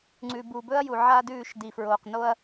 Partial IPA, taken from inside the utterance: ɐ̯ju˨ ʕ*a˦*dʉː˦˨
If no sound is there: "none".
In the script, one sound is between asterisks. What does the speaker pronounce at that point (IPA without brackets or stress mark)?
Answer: a˦